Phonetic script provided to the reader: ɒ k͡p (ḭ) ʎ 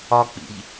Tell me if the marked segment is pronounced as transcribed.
yes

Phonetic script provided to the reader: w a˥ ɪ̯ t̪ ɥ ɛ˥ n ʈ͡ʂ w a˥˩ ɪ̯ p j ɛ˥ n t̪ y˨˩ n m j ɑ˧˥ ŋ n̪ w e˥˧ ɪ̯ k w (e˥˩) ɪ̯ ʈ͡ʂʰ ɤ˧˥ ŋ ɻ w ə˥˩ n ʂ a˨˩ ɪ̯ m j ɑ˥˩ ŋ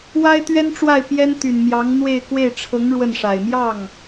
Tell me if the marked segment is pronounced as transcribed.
yes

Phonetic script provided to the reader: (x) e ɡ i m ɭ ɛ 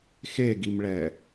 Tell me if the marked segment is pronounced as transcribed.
yes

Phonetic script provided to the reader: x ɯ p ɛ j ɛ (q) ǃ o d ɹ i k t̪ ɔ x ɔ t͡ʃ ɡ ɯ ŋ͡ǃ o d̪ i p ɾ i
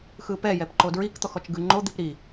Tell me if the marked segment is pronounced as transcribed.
no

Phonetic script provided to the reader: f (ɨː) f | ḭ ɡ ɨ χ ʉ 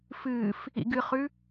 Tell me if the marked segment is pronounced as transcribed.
yes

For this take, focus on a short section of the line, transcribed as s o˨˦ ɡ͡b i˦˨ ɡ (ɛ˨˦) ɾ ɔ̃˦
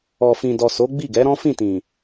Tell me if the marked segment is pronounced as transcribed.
yes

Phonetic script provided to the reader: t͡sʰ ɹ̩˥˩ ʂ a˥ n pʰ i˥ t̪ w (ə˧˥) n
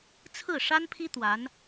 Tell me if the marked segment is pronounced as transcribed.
no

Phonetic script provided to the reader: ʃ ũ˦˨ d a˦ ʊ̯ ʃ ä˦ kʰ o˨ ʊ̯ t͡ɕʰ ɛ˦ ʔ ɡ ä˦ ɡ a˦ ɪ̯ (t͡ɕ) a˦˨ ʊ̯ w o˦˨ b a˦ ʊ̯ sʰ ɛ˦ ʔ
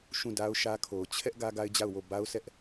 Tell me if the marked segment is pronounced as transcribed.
no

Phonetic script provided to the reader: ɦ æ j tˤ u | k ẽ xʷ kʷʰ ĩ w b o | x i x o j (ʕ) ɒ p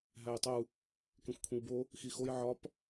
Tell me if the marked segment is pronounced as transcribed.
yes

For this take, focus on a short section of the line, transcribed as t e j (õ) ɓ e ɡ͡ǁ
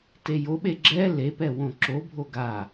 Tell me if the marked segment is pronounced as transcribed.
no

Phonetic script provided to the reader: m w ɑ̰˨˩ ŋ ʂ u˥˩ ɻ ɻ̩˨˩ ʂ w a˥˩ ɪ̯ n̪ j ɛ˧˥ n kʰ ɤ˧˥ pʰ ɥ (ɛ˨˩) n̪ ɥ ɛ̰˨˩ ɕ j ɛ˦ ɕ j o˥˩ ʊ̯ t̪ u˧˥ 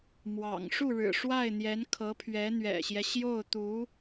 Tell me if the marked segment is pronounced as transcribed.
no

